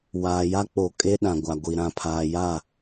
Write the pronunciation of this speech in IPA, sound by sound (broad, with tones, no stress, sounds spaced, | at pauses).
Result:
w aː˨ j a˦ k͡p o˨ kʼ e˦ ɗ ã˨ ɡʷ a˨ ɡʷ i˨ ɾ ã˨ pʰ aː˨ j a˦˨